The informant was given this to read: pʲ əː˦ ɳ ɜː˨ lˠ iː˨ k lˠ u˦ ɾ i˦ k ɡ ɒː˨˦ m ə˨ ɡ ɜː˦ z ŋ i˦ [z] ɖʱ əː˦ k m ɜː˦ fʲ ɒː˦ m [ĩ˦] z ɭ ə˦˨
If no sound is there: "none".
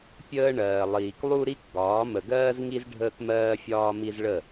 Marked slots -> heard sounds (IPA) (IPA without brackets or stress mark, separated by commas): z, i˦